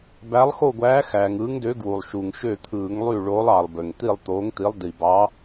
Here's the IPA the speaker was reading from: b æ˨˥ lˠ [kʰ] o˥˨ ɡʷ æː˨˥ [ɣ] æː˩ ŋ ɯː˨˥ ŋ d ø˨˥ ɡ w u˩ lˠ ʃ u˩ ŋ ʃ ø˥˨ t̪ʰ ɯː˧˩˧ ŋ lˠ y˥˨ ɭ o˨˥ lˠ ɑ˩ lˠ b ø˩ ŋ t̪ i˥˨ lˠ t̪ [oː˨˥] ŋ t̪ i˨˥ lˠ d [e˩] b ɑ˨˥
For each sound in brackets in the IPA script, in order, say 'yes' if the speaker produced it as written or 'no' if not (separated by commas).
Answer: no, no, yes, no